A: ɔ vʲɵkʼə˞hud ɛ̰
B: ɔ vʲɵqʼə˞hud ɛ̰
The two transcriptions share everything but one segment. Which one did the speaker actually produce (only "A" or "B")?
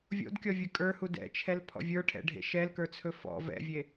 A